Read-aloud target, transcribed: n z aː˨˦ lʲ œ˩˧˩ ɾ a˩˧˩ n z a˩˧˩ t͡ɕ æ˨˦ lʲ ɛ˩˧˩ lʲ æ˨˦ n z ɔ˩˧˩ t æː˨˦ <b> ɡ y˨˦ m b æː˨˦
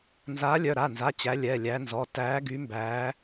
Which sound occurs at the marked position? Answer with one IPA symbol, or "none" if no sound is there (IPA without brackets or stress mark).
none